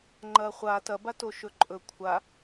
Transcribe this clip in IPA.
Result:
ŋ͡ǃ ɐ χʷ a t ɐ b a t o ʃ ɵ ǃʼ ɵ kʷʰ a

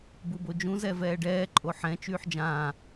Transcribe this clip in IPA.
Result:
b u b o d͡ʒ ũ z ɛ v ɛː ɖ ɛː ǃʼ o ħ ɛ̃ t͡ʃ yː ħ d͡ʒ ãː

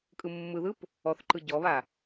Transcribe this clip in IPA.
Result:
kʼ ɯ mː ɯ ð ɯ p | ɔ θ ǃ ɯ ɟ ɔ β a

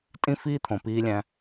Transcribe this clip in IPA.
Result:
tʼ ĩ˦ f iː˦ t̪ʰ õ˨ p iː˦ lʲ æ̃˦

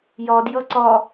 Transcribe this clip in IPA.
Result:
j ɒ d j ʌ ǀ ɒ

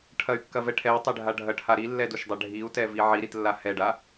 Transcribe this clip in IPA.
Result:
ʈʰ ɐ y̯ kː ɐ v ɛ ʈʰ ɛ w tˤ ɛ ɖʱ a ɖʱ ɐ ʈʰ a ɾ i lː ɛ d u ʃ dˤ a ɖʱ i u̯ t ɛ v i ʕ i ɾ i t lː a h ɛ ɖ a

